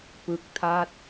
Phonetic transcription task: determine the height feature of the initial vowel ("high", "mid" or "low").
high